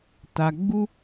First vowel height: low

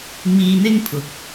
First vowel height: high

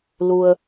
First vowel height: high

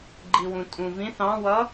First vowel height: high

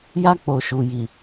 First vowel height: low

